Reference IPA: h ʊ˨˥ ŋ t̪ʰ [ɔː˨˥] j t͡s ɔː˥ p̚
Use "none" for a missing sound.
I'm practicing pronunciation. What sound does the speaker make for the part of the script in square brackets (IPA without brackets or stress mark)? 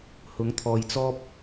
ɔː˨